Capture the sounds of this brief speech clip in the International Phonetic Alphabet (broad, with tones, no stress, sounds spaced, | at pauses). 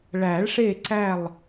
ɭ æ˨˩˦ ɭ ʂ e˦˨ ǀ æ˦˨ lˠ